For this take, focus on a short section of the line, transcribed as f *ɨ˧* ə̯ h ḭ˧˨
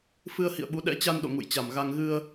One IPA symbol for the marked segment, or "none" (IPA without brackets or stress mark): ɨ˧